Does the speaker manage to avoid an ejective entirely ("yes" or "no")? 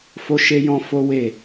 yes